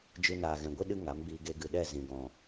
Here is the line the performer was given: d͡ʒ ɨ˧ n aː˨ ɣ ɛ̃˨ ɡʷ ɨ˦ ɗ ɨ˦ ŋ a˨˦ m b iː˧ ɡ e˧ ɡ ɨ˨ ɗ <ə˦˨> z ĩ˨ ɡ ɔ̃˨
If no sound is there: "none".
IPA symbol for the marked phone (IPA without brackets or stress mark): ɛ˦˨